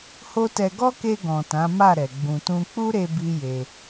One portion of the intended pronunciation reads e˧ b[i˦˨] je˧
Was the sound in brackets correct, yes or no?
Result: no